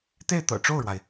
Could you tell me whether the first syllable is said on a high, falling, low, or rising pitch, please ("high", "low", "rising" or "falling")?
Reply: falling